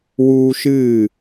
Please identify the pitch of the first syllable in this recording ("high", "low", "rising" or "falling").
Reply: high